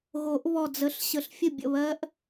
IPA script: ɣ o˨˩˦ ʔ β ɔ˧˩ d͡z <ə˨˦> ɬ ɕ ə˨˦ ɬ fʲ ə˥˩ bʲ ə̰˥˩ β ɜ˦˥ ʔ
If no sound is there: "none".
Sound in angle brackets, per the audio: ə˨˦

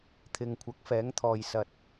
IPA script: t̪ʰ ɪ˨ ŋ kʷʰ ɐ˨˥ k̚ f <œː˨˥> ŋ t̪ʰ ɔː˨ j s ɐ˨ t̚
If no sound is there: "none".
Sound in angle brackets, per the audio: ɛː˨˥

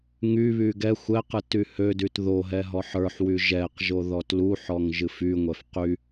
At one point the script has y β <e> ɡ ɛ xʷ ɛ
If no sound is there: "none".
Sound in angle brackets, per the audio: y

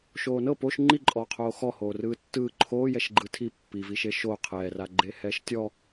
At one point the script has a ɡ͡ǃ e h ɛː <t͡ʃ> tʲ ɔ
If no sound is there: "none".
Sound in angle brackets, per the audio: ʃ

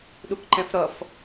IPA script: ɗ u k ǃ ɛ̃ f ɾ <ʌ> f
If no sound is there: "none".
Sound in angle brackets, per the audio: ʌ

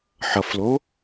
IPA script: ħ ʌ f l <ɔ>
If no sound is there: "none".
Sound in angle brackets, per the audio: o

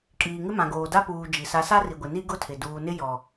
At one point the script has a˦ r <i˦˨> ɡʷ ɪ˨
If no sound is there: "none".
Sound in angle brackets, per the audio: i˨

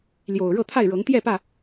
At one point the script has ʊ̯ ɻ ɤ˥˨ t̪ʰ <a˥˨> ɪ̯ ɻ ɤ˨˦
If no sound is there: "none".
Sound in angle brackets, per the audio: a˥˨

